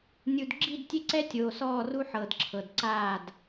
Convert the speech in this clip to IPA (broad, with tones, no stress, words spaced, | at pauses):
nʲu˨dɡ͡ǁi˦˨dtʲe˦ǀɛ˦ tʲoː˨sɔː˦˨ru˦ ħɤ˨dǁʰɤ˨d ǀaː˦˨d